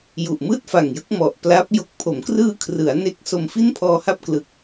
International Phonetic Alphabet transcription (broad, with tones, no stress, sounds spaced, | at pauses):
j u˨˩ ʔ m ɯː˥˩ t̚ f a˨˩ ŋ j ɯ˦˥ k̚ m ɔ˨˩ ʔ p l a˦˥ p̚ j o˨˩ k̚ pʰ o˩˦ m k r ɯː˧ kʰ r ɯ˩˦ a̯ n e˦˥ k̚ s o˧ m f i˥˩ n pʰ ɔː˧ h a˥˩ p̚ k l ɯ˨˩ k̚